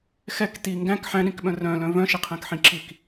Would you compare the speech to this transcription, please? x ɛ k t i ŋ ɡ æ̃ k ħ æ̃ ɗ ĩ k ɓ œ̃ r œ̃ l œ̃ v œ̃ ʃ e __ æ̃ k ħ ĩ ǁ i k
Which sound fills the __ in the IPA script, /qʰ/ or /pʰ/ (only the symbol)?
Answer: qʰ